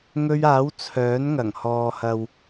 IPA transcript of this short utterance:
ŋ ɵ˧ ɥ aː˨˥ w t͡sʰ œː˨˥ n ŋ ɐ˨˩ ŋ h ɔː˨ h ɐ˨ w

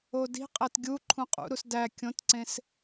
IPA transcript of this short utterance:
o d i̤ qʼ æ t ɡʲ u ǃʰ ũ qʼ ṵ ɾ u s d æ kʲ õ t ǀ ẽ s

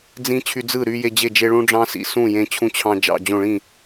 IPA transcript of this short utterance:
d͡z ĩ˦ t͡ɕʰ y˦ d͡z ɯ˥˨ ɾ y˦ j e˦ d͡ʑ e˥˨ d͡ʒ e˦ ɭ ũ˦ ɖ͡ʐ ɑ̃˦ s ḭ˦ s ũ˥˨ j ẽ˦ t͡ɕʰ ũ˦ t͡ɕʰ ɑ̃˦ d͡ʒ ɑ̰˥˨ d͡ʑ õ˥˨ ɭ ĩ˥˨

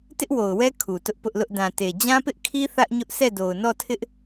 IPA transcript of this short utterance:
t ɪ˦ ʔ w o˨ ʊ̯ w ɛ˦ kʰ u˨ t ʊ˦ ʔ p ʊ˦ ʔ l ʊ˦ ʔ d ã˨ t e˨ d͡ʑ ã˦ p ɪ˦ ʔ kʰ i˦ θ ä˦ ʔ ɲ ʊ˦ ʔ s ɛ˦˨ d o˨ ʊ̯ n ɔ˦˨ tʰ ɪ˦ ʔ

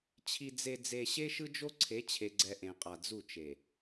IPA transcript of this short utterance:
t͡ɕʰ i˨ d͡z e˨ d͡z e˨ ɕ e˦ ʃ ɯ˦ d͡ʒ o˦ ǀʰ e˨˦ t͡ɕʰ e˨ ɡ͡ǀ ɛ˨ ʔ ẽ˨ qʼ a˨ d͡z u˦˨ t͡ʃ e˨

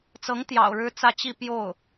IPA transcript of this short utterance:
t͡s ɤ˧˥ ŋ t̪ j ɑ̰˨˩ ʊ̯ ɻ ɻ̩˥ t͡s ä˥˧ t͡ɕ i˥˧ p j o˥˩ ʊ̯

